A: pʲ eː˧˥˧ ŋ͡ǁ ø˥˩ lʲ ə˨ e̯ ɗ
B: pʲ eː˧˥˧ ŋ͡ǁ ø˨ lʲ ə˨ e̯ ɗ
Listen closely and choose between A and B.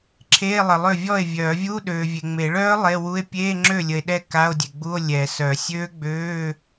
A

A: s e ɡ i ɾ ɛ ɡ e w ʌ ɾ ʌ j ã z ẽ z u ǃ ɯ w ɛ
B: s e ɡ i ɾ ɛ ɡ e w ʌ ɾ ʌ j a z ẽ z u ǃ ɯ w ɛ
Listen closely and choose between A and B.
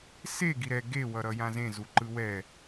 A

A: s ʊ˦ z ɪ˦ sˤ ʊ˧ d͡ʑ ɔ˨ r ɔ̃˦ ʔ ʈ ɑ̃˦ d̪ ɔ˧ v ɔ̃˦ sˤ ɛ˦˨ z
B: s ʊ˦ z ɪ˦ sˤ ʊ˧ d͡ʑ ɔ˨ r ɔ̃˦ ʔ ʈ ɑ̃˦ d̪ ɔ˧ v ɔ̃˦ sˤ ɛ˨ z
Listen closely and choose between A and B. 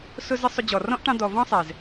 B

